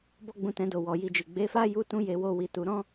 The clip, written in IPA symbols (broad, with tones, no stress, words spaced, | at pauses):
bɔ˦ɡ͡bũ˧tɛ̃˧do˨ wɔ˨ji˧d͡ʒi˨ ɡ͡be˨˦fa˦ ju˦tũ˦ je˧ wo˦wi˧tu˧ ɾɔ̃˦